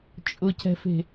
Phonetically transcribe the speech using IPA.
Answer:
t͡ʃʼ ʊ c ɛ̤ f e̤

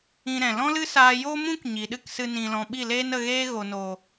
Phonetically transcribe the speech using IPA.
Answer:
ĩ˧ ɾ ɛ̃˨ l ɔ̃˦ l ɨ˦ s aː˧ j oː˦ m ũ˦ k ɲ i˨ ɗ ɨ˦ k s ɨ˧ n ĩ˨ l ɔ̃˨ ɓ i˦˨ l eː˦ n ə˧ ɣ eː˦ ɣ o˨ n o˨

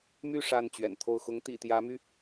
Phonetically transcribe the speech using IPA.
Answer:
m y˥˨ ʂ a˥˨ n t͡ɕ ɥ ɛ̰˨˩ n t̪ʰ o˥˨ ʊ̯ x ʊ˨˦ ŋ t̪ ḭ˨˩ t̪ j ä˨˦ m y˧

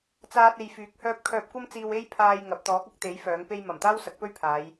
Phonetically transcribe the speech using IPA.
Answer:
t͡s aː˧ t̚ e˧ j f yː˨˥ k̚ h œː˥ p̚ kʰ œː˧ p̚ kʷ ɐ˥ m t͡s iː˧ w e˥ j pʰ aː˧ j ŋ ɐ˨ p̚ t̪ ɔː˨˥ k̚ ɐ˨˥ k̚ t̪ e˨˥ j f œː˨˥ ŋ p e˥ j m ɐ˨˩ m t̪ aː˥ w s ɐ˨˥ k̚ p ɵ˥ ɥ pʰ aː˨˧ j

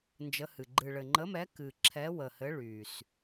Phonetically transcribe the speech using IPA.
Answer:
n d͡ʒ ə˨˥ h ɨ˨˩ ɡ͡ǃ ɨ˨˩ ɭ ɘ˨˩ ŋ͡ǃ ə˨˥ m ɛ˨˥ k ɨ˨˩ ǁʰ ɛ˨˥ w ə˨˩ h ɘ˨˥ ɭ y˨˩ s

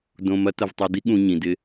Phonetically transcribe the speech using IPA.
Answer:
d õ˧ m ɐ˥ t ɐ˧ v tˤ o˧ d i˥ ɠ ũ˧ ɲ ĩ˩ d ɪ˧

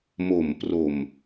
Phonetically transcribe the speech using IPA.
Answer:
m o˨˩ m p r o˨˩ m

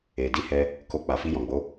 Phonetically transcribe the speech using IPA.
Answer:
e˨ d i˧ h ɛ˧ | k o˧ k͡p a˨ f i˧ j ɔ̃˨ ɡ͡b o˨˦

